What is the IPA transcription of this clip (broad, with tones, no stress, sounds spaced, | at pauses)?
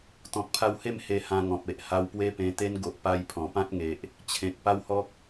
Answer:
t̪ ɔ̃˨ k̚ pʰ a˧ w h e˥˧ m h e˧ h ã˧ ŋ ɔ̃˨ p̚ e˨ ʔ h a˧ w p w e˦ p ẽ˧ t̪ e˦ n ɡ o˨ ʔ p a˧ j pʰ ɔ̃˨˩ p ã˦ t̚ ŋ e˦ ʔ | t͡ɕʰ ẽ˨ k̚ p a˦ w h ɔ˦ k̚